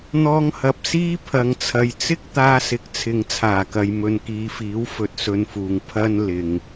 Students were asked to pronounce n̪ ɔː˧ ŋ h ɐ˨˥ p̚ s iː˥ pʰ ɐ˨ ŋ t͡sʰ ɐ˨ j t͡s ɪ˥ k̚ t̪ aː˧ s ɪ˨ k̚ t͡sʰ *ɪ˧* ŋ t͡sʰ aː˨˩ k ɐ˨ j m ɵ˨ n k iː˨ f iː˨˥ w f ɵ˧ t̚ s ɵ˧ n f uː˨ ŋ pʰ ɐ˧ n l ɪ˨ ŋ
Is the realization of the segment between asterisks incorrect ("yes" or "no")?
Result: yes